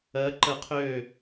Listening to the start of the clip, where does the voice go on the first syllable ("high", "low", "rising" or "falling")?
rising